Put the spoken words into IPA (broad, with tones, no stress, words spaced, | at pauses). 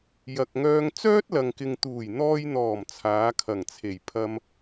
jɐ˨k̚ŋœː˧ŋ t͡sœː˥t̚lɐ˨ŋkɪ˨ŋ t̪uː˨˩jn̪ɔː˧jn̪ɔː˨˩m t͡sʰaː˨˧kʰɐ˨˩ŋt͡sʰe˨˩jpʰɐ˧m